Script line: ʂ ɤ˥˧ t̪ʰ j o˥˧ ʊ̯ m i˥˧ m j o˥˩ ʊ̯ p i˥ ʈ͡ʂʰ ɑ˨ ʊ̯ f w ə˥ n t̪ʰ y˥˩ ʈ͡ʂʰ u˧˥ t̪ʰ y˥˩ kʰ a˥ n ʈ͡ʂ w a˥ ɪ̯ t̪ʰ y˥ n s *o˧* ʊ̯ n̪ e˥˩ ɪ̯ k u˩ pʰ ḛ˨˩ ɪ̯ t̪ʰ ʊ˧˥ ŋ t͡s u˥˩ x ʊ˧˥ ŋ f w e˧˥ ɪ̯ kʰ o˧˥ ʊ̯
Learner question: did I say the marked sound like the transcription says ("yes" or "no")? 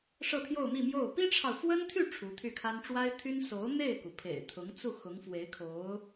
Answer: no